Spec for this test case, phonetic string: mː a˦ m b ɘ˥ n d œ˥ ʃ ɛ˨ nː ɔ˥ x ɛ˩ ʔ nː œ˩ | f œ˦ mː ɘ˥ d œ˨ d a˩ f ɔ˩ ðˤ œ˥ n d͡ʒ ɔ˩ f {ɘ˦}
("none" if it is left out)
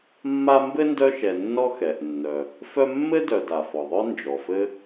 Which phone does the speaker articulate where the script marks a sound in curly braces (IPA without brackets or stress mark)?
ɘ˦